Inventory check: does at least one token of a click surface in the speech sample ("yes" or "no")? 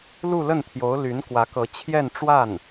no